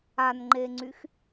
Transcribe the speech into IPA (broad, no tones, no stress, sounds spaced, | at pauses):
a n ŋ͡ǃ e ŋ͡ǀ y x